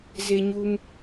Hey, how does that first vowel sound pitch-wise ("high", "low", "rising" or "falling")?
high